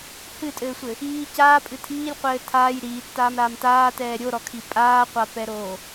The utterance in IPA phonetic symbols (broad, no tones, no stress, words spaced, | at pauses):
hɨtʼɘːsʷɘ | iː caːpʼɨ tʰiːlʲqʷɘː tʰaːj ɾiːtːaːmɾaːm taːtɛː ɾʲoɾɔkʰi pʼaːqʷapɛɾoː